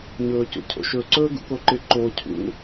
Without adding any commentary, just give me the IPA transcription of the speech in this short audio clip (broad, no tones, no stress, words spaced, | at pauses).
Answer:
ɲɵːcṵcʰo̰ʃɵ ǀɵːɡṵkoǃɪ ǃo cʰṵ